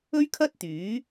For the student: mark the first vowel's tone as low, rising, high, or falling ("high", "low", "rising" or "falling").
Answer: high